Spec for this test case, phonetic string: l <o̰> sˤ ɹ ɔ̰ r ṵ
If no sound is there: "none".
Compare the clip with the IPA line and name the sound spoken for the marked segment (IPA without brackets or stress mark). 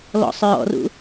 ɔ̰